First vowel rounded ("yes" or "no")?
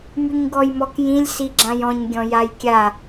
yes